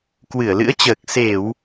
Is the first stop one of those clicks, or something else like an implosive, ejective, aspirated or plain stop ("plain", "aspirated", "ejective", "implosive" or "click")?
plain